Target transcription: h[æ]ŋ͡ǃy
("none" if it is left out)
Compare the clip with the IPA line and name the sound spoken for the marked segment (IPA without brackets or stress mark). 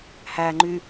æ